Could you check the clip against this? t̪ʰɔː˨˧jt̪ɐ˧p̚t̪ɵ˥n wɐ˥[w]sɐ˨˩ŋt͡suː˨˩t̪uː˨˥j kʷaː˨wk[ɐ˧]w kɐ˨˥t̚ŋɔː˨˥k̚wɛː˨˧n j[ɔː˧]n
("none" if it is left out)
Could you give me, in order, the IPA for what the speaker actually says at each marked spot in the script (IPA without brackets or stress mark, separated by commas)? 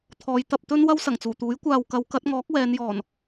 w, ɐ˨˧, ɔː˨˩